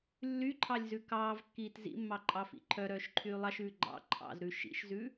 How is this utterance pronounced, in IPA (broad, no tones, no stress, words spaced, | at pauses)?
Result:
lːyǃʰɑlʲzʉ kɑːvkːiːt zḭmːɑǃʼɑfḭ ǃʰœɾœːʃǃʰyː lˠɑʃʉː ɡ͡ǃɑ̰ ǃʰɑ̰zɾʉ ʃḭʃzʉ